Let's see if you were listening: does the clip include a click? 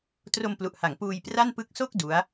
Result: no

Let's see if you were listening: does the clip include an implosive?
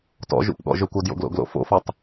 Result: yes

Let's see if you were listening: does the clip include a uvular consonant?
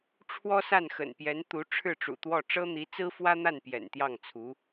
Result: no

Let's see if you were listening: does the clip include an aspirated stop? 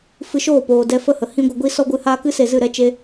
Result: no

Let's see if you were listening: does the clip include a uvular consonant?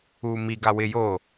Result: no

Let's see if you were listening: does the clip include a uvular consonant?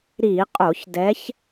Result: yes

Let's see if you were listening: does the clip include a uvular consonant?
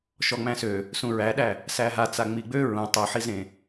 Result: no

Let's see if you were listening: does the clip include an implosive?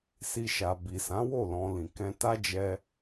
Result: no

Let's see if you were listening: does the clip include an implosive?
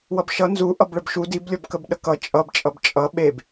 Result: yes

